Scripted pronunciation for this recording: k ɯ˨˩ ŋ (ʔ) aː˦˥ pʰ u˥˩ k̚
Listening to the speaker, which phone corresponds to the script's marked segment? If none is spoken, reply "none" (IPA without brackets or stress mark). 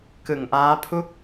ʔ